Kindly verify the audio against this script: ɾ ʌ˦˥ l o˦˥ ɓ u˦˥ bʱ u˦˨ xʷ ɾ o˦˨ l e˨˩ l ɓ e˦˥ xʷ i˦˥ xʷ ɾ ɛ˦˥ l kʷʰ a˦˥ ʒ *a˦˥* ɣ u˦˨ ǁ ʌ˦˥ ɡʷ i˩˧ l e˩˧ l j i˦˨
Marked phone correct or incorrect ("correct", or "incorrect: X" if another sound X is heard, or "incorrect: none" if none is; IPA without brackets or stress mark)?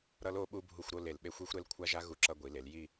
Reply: correct